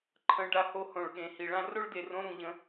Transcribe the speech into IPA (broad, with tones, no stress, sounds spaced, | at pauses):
ǃʰ ə̃˧ ɖ a˧ h o˧ h õ˨ ɭ ɠ ẽ˨ h i˨ ɭ ã˧ r o˦ ɭ d e˨ r õ˧ ɾ ũ˨ ʎ ə̃˧